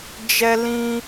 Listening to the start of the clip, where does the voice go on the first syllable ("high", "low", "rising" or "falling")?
high